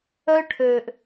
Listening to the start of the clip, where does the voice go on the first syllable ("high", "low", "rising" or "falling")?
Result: high